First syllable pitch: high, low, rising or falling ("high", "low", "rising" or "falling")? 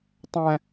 high